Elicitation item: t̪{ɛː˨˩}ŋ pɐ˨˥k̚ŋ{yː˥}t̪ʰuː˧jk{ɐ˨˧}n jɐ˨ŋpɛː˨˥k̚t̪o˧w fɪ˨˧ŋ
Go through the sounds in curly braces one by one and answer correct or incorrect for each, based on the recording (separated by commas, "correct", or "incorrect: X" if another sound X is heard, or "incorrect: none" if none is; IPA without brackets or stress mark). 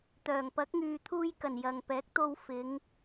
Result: incorrect: œː˨˩, incorrect: yː˨, incorrect: ɐ˨˩